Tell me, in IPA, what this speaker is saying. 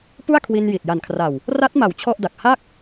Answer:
pu˥˩a̯kʰwi˧n ji˨˩t̚ ja˨˩nkʰra˨˩w | ra˦˥t̚ma˩˦w t͡ɕʰɔ˥˩ʔda˨˩k̚ ha˥˩k̚

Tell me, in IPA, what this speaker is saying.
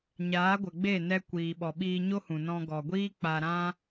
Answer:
ɲaː˨˦ ɡʷə˨ ɡ͡be˦˨nɛ˧ kʷiː˨ ɓɔ˨ɓiː˧ɲo˦hũ˨ nɔ̃˧ɡɔ˨ɡʷiː˦ k͡pa˧ɾã˦

